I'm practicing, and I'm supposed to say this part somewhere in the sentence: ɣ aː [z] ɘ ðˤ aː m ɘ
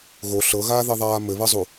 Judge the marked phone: incorrect: ð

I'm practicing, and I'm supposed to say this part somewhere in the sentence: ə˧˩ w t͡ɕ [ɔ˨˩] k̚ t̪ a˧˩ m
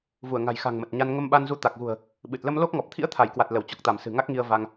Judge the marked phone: correct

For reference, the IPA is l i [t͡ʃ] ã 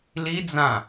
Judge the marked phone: incorrect: d͡z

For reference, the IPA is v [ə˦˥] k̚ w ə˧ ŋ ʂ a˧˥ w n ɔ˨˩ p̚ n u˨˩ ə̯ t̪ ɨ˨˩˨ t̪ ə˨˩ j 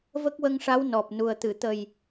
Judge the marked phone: correct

